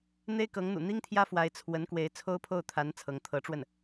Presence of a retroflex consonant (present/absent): present